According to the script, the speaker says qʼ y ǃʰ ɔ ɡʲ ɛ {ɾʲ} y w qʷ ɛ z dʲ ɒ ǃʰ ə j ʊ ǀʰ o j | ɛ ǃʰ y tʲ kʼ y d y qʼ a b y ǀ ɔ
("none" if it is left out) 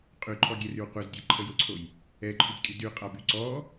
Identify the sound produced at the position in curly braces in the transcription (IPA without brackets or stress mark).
r